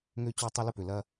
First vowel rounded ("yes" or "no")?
yes